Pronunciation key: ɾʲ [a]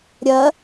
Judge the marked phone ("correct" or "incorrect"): incorrect